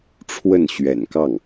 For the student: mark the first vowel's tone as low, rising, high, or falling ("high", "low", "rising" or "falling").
falling